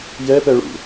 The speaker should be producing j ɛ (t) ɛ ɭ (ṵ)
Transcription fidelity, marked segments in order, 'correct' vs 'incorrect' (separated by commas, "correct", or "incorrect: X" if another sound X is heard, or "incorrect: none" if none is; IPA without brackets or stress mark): incorrect: p, correct